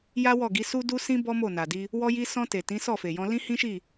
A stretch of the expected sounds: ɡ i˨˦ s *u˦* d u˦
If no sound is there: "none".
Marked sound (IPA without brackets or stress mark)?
u˦